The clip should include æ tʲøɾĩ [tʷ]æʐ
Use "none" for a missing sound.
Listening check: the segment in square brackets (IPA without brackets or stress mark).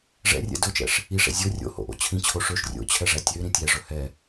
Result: tʲ